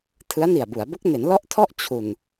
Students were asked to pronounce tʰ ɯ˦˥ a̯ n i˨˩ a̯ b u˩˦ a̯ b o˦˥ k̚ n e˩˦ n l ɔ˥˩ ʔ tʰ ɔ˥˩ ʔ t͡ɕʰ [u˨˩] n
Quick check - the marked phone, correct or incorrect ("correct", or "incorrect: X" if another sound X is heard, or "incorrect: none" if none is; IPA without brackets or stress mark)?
correct